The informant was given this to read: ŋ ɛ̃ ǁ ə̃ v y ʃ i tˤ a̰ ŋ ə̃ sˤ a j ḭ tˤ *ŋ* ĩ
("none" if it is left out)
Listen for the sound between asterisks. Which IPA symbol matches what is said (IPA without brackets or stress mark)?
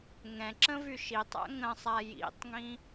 ŋ